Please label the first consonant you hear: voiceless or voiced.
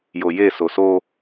voiced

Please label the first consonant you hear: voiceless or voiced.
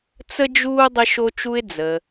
voiceless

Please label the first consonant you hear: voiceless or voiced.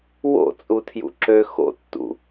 voiced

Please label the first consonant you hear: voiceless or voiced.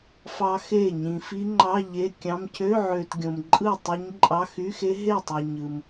voiceless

